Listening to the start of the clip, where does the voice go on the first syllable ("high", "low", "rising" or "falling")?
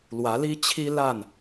rising